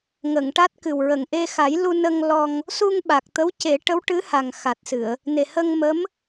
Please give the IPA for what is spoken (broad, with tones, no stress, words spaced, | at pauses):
ŋə˨˩˨ŋʈa˦˥t̚kɨ˨˩wɹə˨˩ŋ ʔe˧xa˨˩˦jlu˧nə˧ŋ lɔ˧ŋ | su˧ŋɓa˨˩k̚t̪ə˧˥w ce˨˩˦ʈə˧˥w ʈɨ˧˥ha˨˩ŋxa˨˩t̚sɨ˨˩˨ə̯ | ne˨˩hə˧ŋmə˧˥m